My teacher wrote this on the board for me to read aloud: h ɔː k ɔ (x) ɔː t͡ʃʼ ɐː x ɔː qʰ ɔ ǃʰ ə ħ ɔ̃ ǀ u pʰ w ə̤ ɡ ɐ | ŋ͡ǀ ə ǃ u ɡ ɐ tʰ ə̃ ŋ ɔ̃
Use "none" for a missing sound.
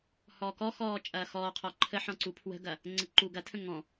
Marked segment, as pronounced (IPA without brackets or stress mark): x